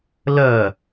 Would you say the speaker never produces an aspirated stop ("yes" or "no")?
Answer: yes